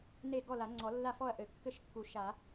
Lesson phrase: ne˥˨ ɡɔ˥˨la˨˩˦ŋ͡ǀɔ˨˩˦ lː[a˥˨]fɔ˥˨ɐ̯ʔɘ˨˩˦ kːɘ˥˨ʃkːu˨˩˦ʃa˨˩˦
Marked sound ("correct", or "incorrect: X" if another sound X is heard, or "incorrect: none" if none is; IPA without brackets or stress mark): correct